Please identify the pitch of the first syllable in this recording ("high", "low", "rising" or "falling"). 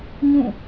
falling